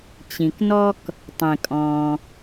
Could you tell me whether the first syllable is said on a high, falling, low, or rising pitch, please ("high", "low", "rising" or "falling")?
low